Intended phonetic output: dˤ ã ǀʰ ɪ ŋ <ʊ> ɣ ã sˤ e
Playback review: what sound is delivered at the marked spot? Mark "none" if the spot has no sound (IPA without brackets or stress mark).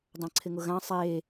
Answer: ʊ